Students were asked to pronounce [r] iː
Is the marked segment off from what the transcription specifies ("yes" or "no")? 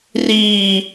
no